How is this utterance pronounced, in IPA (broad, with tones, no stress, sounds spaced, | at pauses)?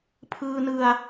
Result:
pʰ ɯː˧ n ɯ˧ a̯